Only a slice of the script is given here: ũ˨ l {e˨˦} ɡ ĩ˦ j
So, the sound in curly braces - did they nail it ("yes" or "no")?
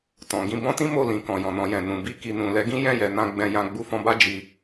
no